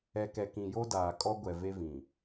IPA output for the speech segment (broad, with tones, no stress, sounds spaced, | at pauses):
ɛ˨ k ɛ˨ k ĩ˨ j o˦ d aː˨ kʼ ɔ˦ ɡʷ ɛ˨ v e˦ v ĩ˨